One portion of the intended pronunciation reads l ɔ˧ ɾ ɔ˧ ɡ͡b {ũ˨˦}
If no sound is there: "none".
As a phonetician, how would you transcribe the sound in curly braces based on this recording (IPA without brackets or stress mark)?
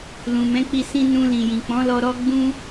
ũ˧